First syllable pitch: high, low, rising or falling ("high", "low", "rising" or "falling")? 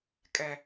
low